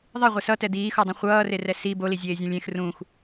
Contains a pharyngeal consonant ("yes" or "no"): no